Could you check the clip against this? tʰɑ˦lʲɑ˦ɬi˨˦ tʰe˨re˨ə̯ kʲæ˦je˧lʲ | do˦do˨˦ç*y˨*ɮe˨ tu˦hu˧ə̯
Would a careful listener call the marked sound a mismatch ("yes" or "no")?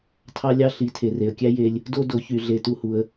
no